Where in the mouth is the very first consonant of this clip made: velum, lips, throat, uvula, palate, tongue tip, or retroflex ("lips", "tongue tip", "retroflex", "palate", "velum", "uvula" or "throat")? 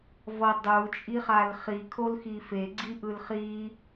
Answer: lips